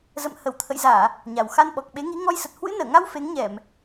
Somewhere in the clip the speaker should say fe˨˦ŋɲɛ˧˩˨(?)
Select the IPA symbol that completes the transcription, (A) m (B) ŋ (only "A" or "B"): A